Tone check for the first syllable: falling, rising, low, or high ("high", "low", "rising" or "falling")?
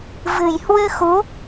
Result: low